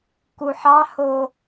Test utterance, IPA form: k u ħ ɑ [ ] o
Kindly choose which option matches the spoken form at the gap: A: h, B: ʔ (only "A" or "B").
A